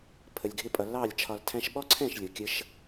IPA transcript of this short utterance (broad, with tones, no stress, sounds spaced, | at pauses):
pʰ ə˨ lʲ ɡʱ ɪ˧ pʼ ʌ˨ l ɑ˦˨ lʲ t͡ʃʰ ɒ˧ l tʰ æ̃˧ ʃ ɓ ɔ˦ ǀʰ ɛ̃˦˨ ʃ lʲ ʊ˨ kʲ ə˦ ʃ